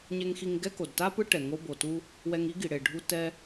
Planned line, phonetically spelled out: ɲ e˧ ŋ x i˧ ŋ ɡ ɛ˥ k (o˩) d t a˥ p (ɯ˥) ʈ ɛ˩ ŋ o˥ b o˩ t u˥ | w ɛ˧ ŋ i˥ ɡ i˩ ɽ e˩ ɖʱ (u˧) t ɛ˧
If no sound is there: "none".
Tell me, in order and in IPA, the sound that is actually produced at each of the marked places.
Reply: o˩, ɯ˥, u˧

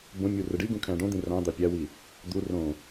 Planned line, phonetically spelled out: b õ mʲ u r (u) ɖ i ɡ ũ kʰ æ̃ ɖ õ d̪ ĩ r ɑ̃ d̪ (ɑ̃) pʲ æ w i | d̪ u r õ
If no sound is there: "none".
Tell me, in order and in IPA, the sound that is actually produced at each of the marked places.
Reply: ɯ, ɑ

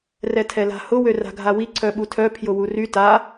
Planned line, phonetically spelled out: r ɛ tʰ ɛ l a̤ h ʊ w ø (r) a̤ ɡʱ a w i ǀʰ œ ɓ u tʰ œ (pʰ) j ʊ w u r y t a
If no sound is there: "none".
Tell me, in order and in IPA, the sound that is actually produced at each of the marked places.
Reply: r, pʰ

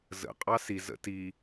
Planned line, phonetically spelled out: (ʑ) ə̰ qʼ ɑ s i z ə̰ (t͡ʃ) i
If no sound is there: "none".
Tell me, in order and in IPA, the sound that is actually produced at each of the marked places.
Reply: z, t

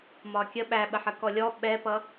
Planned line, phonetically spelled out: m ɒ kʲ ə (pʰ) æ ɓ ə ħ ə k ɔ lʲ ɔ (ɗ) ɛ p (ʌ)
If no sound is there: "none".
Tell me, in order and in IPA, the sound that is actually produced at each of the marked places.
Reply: ɓ, ɓ, ʌ

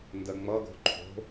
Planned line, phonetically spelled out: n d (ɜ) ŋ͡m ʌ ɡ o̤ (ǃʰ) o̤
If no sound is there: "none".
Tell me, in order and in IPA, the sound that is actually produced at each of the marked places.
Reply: ɜ, ǃʰ

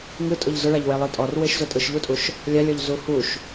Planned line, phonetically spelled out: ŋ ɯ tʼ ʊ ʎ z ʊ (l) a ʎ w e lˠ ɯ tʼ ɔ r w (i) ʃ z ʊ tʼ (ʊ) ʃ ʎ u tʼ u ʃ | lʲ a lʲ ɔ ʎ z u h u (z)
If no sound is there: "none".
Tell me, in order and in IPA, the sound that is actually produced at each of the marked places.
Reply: ɭ, e, ɯ, ʃ

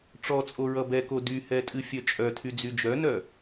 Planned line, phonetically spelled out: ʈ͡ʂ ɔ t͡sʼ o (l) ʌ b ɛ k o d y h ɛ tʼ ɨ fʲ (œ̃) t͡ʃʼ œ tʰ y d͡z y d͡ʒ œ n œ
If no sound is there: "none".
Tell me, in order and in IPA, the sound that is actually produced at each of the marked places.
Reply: ɹ, œ

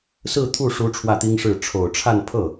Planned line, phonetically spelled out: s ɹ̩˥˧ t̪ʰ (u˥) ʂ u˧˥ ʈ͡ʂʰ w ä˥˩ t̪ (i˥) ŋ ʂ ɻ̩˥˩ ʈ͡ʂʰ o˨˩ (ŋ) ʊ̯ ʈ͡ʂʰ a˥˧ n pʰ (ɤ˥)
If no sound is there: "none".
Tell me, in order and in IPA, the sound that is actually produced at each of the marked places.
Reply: u˥˩, i˥, none, ɤ˥˩

